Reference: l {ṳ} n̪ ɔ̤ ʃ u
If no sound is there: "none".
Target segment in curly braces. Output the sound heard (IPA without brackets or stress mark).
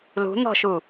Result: ṳ